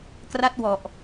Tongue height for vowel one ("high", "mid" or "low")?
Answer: low